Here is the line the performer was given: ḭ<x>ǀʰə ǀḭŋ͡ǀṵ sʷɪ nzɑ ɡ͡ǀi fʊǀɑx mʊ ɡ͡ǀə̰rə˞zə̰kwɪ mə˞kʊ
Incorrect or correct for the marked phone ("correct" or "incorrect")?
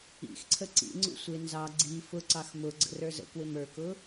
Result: correct